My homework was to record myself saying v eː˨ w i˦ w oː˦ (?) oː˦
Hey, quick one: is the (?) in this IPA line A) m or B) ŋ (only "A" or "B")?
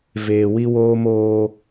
A